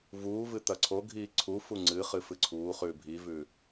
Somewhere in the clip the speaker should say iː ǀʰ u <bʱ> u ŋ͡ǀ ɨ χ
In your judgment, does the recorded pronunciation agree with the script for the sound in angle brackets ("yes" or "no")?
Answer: no